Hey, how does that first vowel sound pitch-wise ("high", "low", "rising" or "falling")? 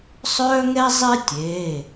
high